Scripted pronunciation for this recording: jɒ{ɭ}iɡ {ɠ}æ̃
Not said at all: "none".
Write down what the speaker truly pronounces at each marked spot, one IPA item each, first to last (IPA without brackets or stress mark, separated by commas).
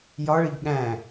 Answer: ɭ, ɠ